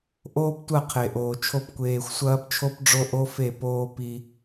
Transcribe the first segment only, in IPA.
ʔ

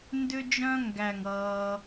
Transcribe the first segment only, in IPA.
n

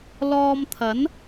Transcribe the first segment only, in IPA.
l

